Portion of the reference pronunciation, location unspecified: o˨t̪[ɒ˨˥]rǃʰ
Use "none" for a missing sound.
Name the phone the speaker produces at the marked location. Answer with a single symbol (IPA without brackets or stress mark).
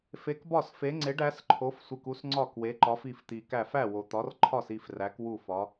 ɒ˨˥